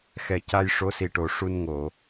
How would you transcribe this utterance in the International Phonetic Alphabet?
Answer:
xɛ˨˩ ca˧j ʂo˧˥si˨˩ʈo˨˩ ʂu˧nŋo˨˩˨

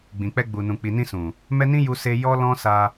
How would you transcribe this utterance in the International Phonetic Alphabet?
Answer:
ɡ͡bĩ˨k͡pɛ˧ ɡ͡bu˨nũ˨ k͡pi˨nĩ˧ sũ˨ | mɛ˦ nĩ˦ju˧ se˧ jɔ˦lɔ̃˦ sa˧

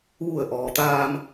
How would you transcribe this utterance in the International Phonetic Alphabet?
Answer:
ʋu˧˩ə̯ʔɔː˩t̪aː˧m

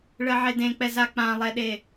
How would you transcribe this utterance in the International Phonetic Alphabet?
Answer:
ɭɜʕedẽk͡pɛ zak͡pãlˠɛɗe

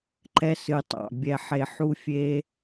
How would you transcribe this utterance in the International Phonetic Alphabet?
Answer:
ǃɛ˧ sɨ˨tˤɑ̰˨ bʲɛ˧ħe˧ ħu˦fʲe˦

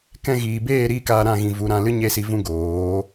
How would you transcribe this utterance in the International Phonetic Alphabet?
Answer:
kɛ̃˧ɣiː˨beː˦˨ ɾiː˦kaː˧ɾã˦˨ ɣĩ˨ vu˨˦ɾã˧lɨ˦ ɲe˦si˧ vũ˦ɡoː˨˦

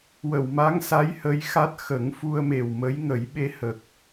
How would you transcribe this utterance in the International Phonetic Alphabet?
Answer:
wə˨˩˨wma˧˥ŋsa˧˥j hə˧˥jxa˦˥t̚ xə˨˩˦ŋfu˧ə̯me˨˩wmə˧˥j ŋə˨˩˦jɓe˧hə˨˩k̚

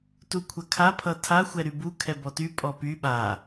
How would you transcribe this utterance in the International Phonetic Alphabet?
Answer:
tukʷʰɐkʰa pʰʌtʰa xʷɛɾybu kʰɛbɔty pʼɔpy ɓa

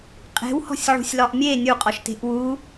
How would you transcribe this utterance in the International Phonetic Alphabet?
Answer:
qʼe̤whɔ̤sʲʕṳsʲlɒʔ mʲe nʲuqʼɔʃte̤ʔ wu

